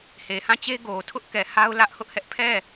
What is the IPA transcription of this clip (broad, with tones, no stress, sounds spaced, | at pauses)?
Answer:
h e˨ h ã˦˨ t͡ɕ e˦ ɡ o˨ tʰ ʊ˦ ʔ k ɛ˨ h a˦ ʊ̯ l ä˦ ʔ h ʊ˦ ʔ h ɛ˦ ʔ pʰ ɛ˦˨